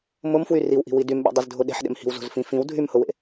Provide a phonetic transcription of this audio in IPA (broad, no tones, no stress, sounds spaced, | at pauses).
m ʊ m f w y r i w ʔ i̤ w i d y m ɓ ḛ dˤ y z dʱ ʊ ɗ e̤ ħ ɗ ḛ m h i̤ w z o̤ z f ĩ f ĩ w dʱ y m h ʊ w ḛ